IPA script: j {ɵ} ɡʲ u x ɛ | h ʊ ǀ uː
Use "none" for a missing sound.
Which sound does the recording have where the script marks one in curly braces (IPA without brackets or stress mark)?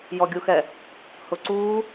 ɔ